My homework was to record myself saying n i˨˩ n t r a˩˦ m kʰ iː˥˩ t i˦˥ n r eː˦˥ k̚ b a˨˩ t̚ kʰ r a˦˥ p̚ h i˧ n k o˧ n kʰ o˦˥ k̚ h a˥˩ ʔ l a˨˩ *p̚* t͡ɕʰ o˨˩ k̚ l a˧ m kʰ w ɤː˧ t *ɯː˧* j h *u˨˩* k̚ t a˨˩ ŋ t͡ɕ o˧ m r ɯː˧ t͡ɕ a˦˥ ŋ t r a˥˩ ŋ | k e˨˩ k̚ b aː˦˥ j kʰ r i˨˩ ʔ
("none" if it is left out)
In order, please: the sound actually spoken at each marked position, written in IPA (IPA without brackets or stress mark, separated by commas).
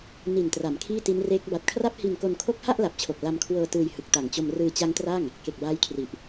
p̚, ɯː˧, ɯ˨˩